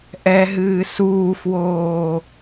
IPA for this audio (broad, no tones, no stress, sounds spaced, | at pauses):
ʔ ɛ ɦ ɨː s uː f w oː